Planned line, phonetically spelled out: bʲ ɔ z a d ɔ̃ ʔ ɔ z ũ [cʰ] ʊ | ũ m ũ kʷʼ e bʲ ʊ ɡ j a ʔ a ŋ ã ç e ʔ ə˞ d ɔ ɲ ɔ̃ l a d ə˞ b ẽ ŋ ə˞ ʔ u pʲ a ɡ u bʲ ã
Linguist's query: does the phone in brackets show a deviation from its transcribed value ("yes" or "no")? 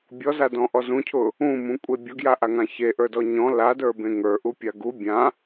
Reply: no